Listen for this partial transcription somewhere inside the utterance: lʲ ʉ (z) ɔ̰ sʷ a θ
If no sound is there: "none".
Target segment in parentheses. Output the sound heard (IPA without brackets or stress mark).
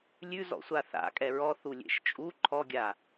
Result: z